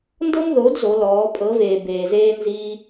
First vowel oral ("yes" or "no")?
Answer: yes